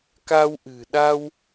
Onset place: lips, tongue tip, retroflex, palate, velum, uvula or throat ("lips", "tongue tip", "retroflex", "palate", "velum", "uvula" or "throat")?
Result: velum